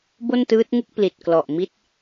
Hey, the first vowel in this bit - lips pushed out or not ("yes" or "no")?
yes